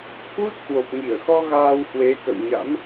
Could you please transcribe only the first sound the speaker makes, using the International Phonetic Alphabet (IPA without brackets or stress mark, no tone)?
h